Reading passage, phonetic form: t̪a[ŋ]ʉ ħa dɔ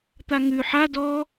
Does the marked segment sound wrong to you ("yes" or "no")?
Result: no